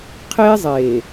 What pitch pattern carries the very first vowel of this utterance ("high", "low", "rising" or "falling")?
high